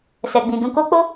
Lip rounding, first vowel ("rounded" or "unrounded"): unrounded